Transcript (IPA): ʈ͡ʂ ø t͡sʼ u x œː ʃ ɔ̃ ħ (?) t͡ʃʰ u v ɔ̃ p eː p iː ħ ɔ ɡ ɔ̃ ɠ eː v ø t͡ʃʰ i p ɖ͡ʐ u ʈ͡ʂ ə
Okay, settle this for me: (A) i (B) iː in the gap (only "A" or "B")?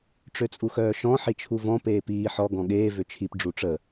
A